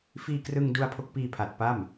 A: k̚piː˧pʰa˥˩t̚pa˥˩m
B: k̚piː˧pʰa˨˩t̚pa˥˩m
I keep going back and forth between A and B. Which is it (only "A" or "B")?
B